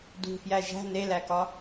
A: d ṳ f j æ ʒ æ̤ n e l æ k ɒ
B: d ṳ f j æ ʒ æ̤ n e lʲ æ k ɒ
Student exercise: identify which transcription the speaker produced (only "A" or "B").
A